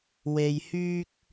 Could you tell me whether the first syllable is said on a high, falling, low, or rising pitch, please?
low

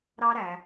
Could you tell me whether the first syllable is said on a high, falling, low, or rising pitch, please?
high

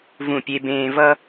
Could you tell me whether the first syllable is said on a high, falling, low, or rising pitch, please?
falling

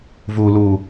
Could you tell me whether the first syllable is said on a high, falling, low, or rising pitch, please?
low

